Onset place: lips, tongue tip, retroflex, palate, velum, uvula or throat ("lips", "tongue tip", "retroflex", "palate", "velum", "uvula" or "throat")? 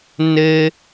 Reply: tongue tip